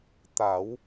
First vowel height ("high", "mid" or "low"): low